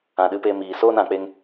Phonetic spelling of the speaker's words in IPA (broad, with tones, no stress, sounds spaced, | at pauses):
ã˨ ɗ ɨ˨˦ p e˧ m iː˨ s oː˦ n ã˨ k͡p e˧ ŋ